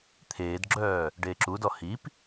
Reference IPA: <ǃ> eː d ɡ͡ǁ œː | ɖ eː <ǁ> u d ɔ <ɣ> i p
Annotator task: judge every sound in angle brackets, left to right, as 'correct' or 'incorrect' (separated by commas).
incorrect, correct, incorrect